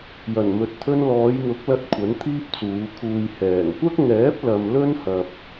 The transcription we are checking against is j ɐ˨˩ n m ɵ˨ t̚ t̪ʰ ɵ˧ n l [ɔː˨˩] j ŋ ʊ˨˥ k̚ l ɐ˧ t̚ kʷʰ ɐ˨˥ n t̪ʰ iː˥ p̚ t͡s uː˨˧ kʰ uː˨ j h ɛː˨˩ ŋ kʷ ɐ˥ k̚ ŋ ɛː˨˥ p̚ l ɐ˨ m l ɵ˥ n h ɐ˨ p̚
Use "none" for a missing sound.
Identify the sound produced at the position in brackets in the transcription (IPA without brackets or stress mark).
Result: ɔː˨˧